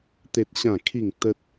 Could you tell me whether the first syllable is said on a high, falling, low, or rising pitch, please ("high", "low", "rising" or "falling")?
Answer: high